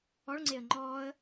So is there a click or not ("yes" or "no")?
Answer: yes